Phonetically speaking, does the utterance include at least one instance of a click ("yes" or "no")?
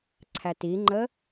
yes